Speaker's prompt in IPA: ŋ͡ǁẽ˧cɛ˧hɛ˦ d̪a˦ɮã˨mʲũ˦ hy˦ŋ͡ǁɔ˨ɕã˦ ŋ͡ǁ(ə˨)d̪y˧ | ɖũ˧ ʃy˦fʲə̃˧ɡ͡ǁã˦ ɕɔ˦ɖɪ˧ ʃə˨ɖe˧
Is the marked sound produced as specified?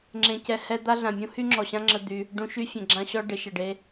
no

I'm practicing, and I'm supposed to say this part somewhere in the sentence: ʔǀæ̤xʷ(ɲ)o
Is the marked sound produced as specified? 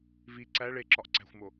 no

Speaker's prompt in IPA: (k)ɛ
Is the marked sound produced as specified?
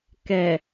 yes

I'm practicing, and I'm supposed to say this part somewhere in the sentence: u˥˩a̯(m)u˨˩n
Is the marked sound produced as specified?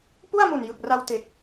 yes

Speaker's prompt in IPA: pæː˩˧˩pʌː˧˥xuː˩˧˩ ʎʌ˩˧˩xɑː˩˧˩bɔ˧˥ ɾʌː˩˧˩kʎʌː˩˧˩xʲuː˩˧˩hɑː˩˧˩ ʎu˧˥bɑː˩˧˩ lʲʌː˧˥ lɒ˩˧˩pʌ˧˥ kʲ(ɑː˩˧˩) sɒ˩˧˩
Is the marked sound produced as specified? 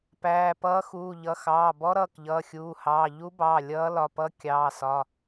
yes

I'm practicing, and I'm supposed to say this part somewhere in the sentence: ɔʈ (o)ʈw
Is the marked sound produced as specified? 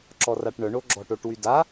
yes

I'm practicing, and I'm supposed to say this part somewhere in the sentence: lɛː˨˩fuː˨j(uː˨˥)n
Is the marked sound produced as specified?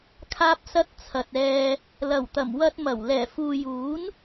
yes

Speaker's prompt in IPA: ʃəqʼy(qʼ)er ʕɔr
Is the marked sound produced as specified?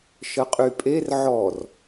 no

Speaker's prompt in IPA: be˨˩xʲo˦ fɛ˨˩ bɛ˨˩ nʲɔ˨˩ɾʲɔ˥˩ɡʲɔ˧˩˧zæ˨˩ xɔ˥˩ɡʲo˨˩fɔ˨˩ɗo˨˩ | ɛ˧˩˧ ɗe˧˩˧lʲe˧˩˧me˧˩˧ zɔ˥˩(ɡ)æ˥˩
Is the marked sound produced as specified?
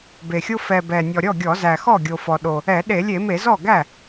yes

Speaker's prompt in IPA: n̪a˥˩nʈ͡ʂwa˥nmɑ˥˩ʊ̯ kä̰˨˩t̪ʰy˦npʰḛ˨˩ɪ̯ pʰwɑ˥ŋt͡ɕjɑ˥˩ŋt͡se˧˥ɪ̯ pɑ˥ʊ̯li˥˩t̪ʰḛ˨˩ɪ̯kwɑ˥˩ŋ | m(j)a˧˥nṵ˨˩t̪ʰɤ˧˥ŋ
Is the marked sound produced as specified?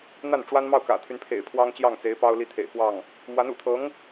no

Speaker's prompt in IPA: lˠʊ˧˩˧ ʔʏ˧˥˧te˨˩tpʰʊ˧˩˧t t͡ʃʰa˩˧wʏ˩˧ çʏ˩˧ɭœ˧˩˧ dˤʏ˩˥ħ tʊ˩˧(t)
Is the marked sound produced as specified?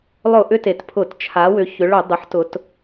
yes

